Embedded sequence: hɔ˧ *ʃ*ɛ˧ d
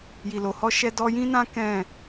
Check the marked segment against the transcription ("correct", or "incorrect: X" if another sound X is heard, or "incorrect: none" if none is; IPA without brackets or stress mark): correct